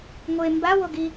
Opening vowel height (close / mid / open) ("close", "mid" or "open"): mid